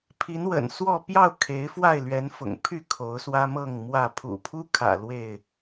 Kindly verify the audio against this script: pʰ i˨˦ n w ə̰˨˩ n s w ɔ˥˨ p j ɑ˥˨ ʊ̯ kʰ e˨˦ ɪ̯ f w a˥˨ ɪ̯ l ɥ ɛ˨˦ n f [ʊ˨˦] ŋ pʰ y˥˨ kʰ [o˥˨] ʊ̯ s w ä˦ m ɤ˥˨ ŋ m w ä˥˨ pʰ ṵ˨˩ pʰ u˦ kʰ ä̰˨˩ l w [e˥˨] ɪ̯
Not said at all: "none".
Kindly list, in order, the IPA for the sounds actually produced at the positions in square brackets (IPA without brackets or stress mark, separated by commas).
ʊ̰˨˩, o˨˦, e˥˨